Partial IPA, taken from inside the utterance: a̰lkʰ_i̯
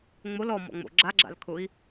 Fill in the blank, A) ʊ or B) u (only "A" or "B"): A